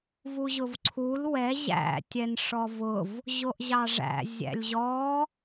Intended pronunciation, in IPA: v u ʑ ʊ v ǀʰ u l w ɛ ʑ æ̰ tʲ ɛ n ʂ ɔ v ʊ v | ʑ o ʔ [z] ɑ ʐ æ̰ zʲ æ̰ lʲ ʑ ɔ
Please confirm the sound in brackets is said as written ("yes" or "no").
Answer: no